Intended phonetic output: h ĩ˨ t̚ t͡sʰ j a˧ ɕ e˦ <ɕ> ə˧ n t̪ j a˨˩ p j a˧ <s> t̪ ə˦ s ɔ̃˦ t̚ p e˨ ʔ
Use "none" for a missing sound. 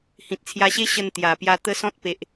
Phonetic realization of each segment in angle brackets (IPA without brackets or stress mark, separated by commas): ɕ, none